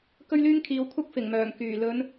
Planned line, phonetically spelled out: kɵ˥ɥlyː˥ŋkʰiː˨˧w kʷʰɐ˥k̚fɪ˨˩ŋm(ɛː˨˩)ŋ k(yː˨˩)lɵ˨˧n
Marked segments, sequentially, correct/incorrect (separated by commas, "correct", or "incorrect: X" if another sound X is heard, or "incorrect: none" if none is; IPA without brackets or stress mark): incorrect: œː˨˩, correct